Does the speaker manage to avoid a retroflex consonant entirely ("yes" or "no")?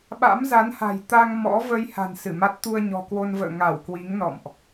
yes